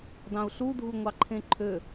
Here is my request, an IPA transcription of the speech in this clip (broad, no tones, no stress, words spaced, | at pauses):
dɑ̃u̯ɬudʱu ŋʷɑǃʰẽǃʰø